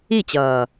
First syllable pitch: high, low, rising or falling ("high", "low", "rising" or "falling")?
falling